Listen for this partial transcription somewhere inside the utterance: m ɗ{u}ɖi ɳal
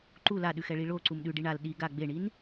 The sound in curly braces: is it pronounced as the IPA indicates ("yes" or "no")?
no